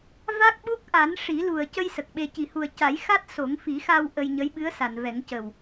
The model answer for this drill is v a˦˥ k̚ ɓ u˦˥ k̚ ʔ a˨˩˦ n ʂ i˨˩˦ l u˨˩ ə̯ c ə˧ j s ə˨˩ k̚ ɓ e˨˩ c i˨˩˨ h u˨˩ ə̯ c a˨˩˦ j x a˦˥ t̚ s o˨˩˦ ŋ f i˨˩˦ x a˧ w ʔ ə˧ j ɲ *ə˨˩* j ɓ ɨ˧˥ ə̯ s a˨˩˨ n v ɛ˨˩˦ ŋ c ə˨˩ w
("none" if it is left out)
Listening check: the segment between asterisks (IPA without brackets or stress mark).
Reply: ə˧˥